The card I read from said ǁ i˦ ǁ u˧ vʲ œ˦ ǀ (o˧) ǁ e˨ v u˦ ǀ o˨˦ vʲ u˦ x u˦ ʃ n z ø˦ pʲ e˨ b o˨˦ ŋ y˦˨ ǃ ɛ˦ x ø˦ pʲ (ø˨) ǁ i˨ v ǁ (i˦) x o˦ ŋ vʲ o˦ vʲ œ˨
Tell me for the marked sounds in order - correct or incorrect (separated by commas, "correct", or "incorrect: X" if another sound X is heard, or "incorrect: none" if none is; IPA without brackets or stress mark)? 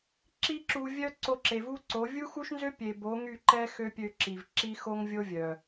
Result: correct, incorrect: ø˧, correct